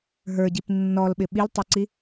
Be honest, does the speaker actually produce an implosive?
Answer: yes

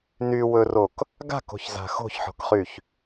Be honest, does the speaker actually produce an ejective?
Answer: no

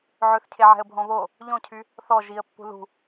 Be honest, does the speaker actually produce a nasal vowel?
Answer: yes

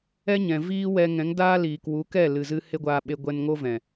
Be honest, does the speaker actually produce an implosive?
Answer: yes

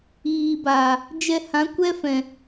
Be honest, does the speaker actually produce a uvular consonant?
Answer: no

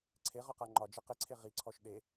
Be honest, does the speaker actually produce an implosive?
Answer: yes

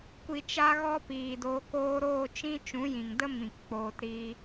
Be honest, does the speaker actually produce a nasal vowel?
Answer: yes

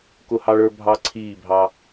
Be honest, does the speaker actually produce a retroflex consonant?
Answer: yes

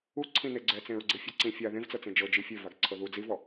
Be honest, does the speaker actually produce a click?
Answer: yes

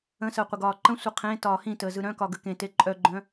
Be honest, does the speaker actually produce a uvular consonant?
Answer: yes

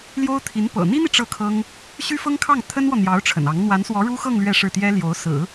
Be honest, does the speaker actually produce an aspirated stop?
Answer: yes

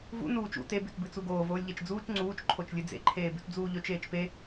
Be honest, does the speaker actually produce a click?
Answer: yes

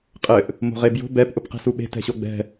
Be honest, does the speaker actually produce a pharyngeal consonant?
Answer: no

